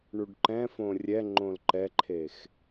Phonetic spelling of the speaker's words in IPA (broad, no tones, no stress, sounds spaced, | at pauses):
ɳ u ɖ ǃ ɛ̃ f õ rʲ ɛ ŋ͡ǃ õ l ǃ ɛ ǃʰ e x